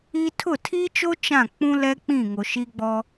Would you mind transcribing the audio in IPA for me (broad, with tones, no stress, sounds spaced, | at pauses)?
i˦ tʰ ʊ˦˨ tʰ i˦ t͡ʃ o˦ t͡ʃ ã˦˨ k͡p ũ˦ l ɛ˦ k͡p ĩ˦˨ ŋ o˨ ʃ i˦ ɡ͡b ɔ˦